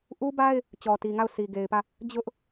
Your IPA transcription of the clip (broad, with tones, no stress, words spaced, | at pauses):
ʔu˦ba˦ɪ̯ | t͡ɕɔ˨ti˨ŋa˦˨ʊ̯ sʰi˨ɡe˨ɪ̯pä˦˨ | d͡ʑʊ˦ʔ